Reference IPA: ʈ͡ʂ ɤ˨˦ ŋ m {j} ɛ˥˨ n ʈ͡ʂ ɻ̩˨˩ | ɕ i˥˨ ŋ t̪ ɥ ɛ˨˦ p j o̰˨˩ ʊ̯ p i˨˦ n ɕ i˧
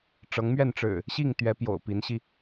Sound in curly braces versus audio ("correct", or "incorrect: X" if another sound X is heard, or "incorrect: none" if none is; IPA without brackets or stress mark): incorrect: ɥ